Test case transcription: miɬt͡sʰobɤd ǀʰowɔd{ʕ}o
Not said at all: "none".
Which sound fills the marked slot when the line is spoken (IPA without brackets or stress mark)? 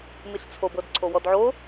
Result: ʕ